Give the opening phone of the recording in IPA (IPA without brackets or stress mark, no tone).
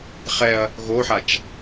χ